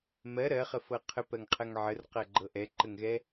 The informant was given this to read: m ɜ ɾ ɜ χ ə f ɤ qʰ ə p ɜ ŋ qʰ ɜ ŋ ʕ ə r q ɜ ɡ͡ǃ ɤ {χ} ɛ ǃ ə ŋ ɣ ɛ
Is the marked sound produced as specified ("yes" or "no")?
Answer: no